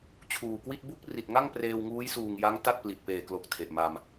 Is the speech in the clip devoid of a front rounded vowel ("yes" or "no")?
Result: yes